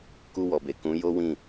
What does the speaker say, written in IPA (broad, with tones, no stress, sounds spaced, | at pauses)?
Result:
k u˧ w ɔ˨ b e˨ k ũ˨˦ j o˦ w ĩ˦˨